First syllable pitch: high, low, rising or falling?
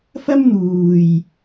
high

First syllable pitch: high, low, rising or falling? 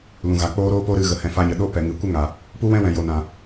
low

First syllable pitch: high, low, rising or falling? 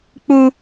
high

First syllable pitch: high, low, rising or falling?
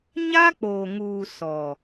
high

